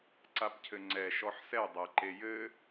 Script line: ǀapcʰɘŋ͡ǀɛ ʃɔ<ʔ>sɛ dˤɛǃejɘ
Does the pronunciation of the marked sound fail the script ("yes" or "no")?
yes